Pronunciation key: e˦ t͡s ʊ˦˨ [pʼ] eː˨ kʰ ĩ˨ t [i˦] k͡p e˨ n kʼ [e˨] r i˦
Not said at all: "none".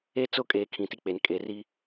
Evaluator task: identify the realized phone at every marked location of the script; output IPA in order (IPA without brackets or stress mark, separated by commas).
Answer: kʼ, i˦, e˨